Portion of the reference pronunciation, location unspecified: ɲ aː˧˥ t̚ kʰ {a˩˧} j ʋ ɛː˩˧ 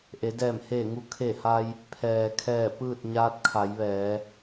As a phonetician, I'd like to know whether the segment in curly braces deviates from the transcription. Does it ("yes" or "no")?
no